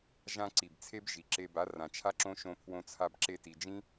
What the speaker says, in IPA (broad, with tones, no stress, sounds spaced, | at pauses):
ʒ ã˧ ǀ i˨ b t͡sʰ e˦ b ʒ i˨ ǁ e˧ b a˨˦ r ã˨ t͡ʃʰ a˦ ǁ õ˦ ʃ õ˧ pʰ w õ˧ t͡sʰ a˧ b ǁ e˧ t i˨ d͡ʒ ĩ˦